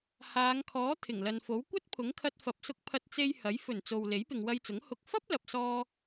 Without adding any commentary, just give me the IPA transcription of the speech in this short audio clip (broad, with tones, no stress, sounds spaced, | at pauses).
h aː˨˧ ŋ kʰ ɔː˨˥ t̪ʰ ɪ˨˩ ŋ l ɐ˨ n f o˨˥ w kʷ ɐ˥ t̚ pʰ ʊ˨˥ ŋ kʰ ɐ˧ t̚ f ɐ˨ p̚ s ʊ˧ k̚ pʰ ɐ˧ t̚ t͡s e˧ j h ɐ˨˥ j f ɵ˨˩ n t͡s o˨ w l e˨˥ j p ɪ˨ ŋ w ɐ˧ j t͡s ʊ˨˥ ŋ h ʊ˨ k̚ f ɐ˥ p̚ l ɐ˨ p̚ s ɔː˧